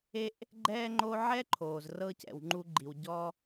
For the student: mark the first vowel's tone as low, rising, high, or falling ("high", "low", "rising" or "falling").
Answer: high